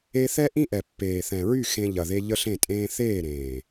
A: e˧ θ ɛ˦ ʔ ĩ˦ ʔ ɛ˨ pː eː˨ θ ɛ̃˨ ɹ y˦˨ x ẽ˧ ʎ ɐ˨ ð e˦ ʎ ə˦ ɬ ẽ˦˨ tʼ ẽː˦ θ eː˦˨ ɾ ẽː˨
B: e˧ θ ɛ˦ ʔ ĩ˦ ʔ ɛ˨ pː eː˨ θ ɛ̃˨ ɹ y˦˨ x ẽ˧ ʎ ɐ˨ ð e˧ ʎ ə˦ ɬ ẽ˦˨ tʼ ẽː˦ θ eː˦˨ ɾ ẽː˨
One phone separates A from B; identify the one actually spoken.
B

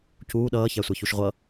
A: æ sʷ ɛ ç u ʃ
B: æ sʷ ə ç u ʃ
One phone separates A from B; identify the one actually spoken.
A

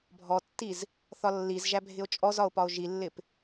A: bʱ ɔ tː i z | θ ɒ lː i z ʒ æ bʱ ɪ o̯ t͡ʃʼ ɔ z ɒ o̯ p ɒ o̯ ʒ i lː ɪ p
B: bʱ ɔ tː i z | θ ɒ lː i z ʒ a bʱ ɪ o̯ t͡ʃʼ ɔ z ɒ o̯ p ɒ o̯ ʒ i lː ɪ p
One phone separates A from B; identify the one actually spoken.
A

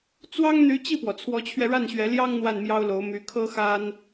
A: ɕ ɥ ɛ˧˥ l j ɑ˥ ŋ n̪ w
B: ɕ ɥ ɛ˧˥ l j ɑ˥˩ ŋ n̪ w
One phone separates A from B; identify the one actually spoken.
A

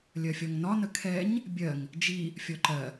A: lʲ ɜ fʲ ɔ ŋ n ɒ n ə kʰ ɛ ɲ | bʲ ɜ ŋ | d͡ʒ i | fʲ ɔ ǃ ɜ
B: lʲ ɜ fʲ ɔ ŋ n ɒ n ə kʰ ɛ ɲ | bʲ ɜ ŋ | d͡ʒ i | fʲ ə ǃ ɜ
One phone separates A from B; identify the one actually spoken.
A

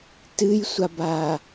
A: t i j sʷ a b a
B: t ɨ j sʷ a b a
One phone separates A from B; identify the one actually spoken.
B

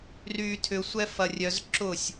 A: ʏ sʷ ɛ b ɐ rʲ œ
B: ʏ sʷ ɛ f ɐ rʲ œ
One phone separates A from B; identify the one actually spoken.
B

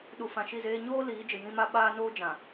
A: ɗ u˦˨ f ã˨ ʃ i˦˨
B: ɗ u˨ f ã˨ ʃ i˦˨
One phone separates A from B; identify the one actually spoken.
B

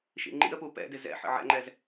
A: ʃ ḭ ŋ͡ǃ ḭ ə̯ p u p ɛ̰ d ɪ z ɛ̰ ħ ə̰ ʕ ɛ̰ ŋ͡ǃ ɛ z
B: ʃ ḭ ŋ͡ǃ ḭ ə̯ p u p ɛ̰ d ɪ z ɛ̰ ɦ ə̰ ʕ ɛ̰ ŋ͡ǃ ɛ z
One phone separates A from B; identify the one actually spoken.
A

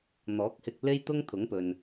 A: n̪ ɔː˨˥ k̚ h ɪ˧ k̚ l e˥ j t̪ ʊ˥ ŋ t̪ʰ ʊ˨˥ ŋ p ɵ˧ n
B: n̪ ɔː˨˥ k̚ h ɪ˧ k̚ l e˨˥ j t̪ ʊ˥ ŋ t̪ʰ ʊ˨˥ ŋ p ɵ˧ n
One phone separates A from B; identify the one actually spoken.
A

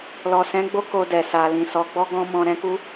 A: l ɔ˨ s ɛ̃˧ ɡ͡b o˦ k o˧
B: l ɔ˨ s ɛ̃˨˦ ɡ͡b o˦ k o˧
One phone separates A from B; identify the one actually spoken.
B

